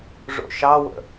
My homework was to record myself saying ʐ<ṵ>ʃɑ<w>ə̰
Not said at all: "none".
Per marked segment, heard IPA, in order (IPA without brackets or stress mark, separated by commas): o̰, w